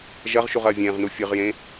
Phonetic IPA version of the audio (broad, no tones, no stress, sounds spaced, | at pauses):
ʒ ɐ ʁ ʃ u ʁ ɐː vʲ ẽː ʁ n u fʲ ɨ ʁ j ẽ